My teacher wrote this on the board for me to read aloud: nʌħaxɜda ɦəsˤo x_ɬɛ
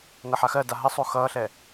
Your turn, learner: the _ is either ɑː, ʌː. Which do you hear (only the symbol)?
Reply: ʌː